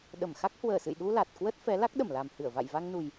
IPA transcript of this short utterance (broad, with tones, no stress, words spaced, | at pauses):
ɗə˧˩mxa˦˥k̚ hwəː˧˩sɨ̰˧˨jɗu˧ la˨˩t̚ kwə˦˥t̚fɛ˨˦ la˦˥k̚ɗə˧˩mla˨˩mhɨ˧˩ə̯ va̰˧˨jva˧ŋnu˨˩j